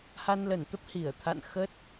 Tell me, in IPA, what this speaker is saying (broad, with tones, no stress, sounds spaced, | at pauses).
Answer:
h a˧ n l ə˧˩ n t̪ ə˦˥ p̚ h i˧˩ ə̯ t̪ʰ a̰˧˨ n x ə˦˥ t̚